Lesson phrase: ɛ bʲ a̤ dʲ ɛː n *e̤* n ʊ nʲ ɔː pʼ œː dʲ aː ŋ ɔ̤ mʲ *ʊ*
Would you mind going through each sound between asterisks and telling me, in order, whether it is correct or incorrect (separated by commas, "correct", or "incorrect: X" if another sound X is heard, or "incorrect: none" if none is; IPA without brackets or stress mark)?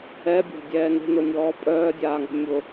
correct, correct